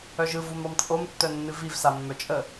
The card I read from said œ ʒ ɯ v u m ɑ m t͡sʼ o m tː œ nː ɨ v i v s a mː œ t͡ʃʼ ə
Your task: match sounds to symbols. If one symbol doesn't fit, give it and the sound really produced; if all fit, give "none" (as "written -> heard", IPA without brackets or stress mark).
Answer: none